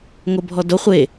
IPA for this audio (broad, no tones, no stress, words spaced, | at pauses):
ŋobʱɔdo χʷe